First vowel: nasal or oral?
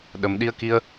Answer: oral